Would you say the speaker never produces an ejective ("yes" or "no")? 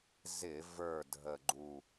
yes